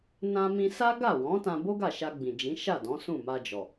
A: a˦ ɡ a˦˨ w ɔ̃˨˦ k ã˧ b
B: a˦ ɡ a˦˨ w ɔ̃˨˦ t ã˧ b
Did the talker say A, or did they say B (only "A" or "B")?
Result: B